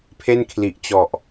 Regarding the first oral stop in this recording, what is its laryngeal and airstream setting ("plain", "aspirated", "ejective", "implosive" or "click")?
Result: aspirated